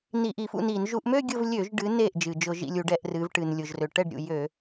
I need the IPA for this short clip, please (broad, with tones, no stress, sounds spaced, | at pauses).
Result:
n i˧˩˧ ʔ i˧˩˧ f ṵ˥˩ n iː˧˩˧ n ʒ u˧˩˧ ʔ m ø˥˧ ɡʲ ʊ˥˧ v lʲ ø˧˩˧ ʒ ɖ ɨ˩˧ n eː˥˩ ʔ d͡ʒ ɨ˩ d͡ʒ ʊ˧˩˧ ʒ ḭ˥˩ lʲ u˧˩˧ ɖ ɛ˧˩˧ ʔ r ɨː˩˧ v ʈ ɨ˩ n lʲ ʊ˩ ʒ r ø˩ ʈ ɛ˥˩ ɖ ɾʲ ṵ˩ j ø˧˩˧